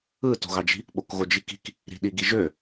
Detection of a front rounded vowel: present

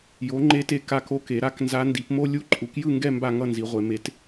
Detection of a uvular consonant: present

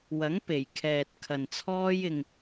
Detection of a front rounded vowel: absent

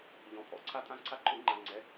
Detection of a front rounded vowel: absent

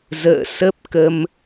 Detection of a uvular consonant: absent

